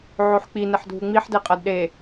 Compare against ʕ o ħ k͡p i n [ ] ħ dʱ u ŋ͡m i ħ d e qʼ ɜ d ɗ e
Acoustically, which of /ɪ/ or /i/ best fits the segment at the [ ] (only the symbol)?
ɪ